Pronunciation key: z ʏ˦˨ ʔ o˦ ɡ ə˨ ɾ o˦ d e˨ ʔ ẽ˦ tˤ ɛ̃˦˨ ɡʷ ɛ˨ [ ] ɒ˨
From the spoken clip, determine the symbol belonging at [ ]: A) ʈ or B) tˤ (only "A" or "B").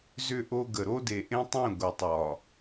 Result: B